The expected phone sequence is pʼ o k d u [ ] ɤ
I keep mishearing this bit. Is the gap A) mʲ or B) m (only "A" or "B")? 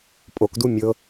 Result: A